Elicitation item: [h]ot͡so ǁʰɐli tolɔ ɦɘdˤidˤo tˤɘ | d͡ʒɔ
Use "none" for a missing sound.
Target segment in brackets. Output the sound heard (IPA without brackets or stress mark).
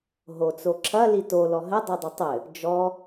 ɦ